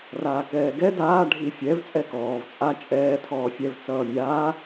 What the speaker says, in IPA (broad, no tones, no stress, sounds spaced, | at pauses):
r aː k ɛː ɡ ɛ d aː ɖʱ i fʲ ɛ v t͡sʼ ɛ k ɔː v t͡sʼ a t͡ʃʼ ɛː tʰ ɔː fʲ ɛ v t͡s ʌː mʲ aː